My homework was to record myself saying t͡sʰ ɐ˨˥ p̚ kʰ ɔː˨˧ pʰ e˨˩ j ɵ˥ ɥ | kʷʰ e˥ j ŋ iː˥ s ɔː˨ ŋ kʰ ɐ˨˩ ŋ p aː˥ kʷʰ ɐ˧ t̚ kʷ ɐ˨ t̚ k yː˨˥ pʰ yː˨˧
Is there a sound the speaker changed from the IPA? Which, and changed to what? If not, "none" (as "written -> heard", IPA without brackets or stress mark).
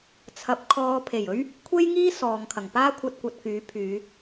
none